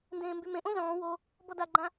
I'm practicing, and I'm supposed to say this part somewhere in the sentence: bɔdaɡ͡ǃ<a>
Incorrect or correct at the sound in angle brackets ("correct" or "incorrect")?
incorrect